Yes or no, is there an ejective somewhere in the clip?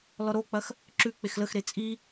yes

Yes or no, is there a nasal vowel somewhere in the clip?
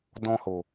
yes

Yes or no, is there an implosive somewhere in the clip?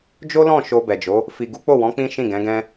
no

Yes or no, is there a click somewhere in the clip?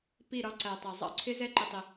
yes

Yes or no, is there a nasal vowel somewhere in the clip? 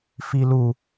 no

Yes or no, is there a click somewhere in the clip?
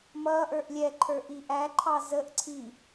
yes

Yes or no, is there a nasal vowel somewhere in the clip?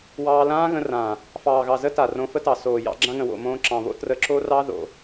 yes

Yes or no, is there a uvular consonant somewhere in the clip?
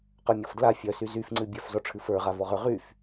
yes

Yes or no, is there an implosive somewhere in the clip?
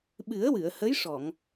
yes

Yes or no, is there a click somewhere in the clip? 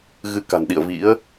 no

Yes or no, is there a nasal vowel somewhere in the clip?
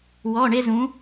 yes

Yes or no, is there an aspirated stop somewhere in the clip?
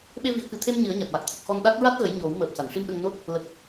yes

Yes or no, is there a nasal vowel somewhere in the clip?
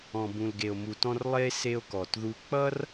yes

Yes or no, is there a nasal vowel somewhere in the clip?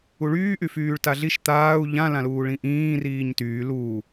yes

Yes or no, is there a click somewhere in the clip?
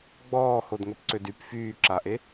yes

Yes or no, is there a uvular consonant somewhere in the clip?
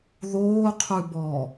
yes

